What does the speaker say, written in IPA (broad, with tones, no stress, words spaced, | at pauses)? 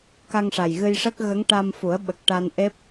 ka˧ŋʂa˨˩jɣɨ˧jʂə˦˥k̚ ɣə˧˥ŋʈa˧mfu˨˩˦ə̯ɓə˨˩k̚ ʈa˧n ʔe˦˥p̚